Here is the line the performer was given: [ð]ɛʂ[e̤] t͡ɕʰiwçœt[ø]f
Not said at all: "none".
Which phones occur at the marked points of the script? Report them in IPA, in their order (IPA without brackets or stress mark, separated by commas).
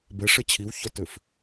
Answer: b, e, ø